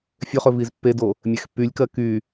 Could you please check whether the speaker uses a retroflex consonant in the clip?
no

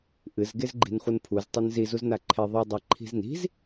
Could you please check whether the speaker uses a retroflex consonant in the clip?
no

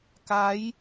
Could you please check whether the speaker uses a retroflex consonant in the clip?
no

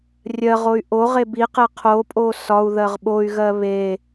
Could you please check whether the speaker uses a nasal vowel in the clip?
no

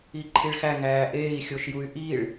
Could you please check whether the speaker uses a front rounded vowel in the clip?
yes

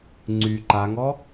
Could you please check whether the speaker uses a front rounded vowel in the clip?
yes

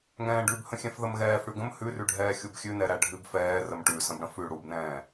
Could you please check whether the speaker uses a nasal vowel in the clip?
yes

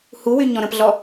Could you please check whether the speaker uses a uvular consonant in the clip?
no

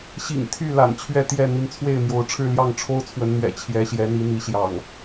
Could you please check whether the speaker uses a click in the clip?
no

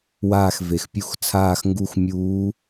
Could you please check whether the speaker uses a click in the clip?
no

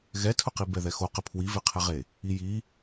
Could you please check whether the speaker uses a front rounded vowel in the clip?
no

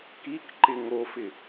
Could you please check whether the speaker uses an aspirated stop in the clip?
no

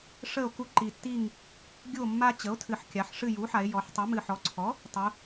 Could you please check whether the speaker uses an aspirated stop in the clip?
yes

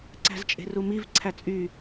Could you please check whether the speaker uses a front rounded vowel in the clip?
yes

